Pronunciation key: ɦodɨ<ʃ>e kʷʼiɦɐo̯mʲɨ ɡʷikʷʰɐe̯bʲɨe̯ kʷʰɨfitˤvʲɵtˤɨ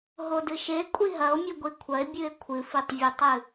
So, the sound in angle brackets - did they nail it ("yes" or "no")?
yes